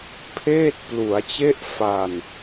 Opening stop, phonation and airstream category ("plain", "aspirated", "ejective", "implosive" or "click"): aspirated